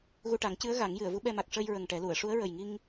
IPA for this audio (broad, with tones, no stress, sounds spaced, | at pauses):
ɣ u˧ ʈ a˨˩˦ ŋ c ɨ˧˥ ə̯ ɣ a˨˩˦ ŋ j ɨ˨˩˨ ə̯ v u˧˥ ɓ ɛ˧ m a˨˩ k̚ ʂ ə˧ j ɹ ə˨˩ ŋ ʈ ɛ˨˩˦ l u˨˩˨ ə̯ ʂ u˧˥ ə̯ ɹ ə˨˩ j ŋ i˧ ŋ